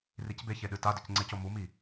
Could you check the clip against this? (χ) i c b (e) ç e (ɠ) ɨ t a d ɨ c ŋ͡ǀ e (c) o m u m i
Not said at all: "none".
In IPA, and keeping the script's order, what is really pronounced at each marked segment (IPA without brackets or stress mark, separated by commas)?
r, e, ɗ, c